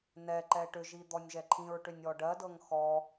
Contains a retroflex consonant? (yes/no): yes